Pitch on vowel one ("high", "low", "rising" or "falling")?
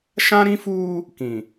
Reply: high